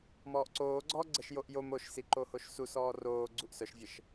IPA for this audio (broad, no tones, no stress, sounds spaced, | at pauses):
m ɔː ʔ ǀ oː ɡ͡ǀ ɔː ɡ͡ǀ ə ʃ j o ʔ j o m o ʃ s i ǃ o h o ʃ s u s ɔː r oː ɡ͡ǀ u ʔ s œ ʃ vʲ ə ʃ